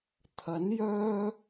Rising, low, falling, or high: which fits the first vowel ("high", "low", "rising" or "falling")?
rising